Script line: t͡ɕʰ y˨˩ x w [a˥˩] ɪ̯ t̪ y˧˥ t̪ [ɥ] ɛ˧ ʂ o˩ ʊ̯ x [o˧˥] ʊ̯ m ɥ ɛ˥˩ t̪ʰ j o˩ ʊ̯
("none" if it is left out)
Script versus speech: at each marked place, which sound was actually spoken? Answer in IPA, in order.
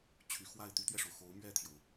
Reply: a˥˩, ɥ, o˧˥

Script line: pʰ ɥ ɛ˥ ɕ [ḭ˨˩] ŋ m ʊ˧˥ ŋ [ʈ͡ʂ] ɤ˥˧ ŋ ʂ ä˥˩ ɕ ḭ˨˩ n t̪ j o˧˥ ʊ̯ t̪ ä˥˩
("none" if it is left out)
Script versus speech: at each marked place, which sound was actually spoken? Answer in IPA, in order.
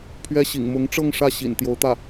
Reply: ḭ˨˩, ʈ͡ʂ

